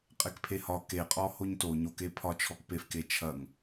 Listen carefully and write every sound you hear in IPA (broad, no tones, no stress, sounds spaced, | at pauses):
qʼ e k pʰ e h ɒ k e qʼ ɔ h o ɲ t o ɲ o k e pʰ ɒ t͡ʃʰ ɔ k p e f k e t͡ʃʰ ɐ ŋ